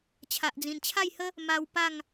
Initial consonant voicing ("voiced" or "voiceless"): voiceless